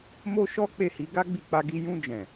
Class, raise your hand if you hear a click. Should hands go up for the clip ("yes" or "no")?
no